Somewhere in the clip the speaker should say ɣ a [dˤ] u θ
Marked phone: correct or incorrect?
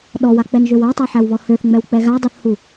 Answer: correct